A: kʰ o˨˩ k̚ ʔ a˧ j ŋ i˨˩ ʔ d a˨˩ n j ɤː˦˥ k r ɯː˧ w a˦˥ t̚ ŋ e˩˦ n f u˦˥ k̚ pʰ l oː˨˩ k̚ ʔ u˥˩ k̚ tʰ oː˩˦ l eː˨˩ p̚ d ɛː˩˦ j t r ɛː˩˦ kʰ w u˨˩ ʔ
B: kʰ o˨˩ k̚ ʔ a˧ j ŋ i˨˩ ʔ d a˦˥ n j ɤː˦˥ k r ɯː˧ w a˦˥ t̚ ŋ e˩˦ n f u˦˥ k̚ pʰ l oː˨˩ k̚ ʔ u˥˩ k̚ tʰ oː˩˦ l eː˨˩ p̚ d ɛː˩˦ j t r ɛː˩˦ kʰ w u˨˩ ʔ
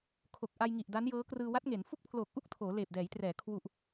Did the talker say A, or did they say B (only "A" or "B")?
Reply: B